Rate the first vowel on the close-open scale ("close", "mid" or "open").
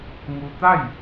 close